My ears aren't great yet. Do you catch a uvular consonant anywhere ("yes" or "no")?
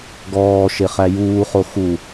yes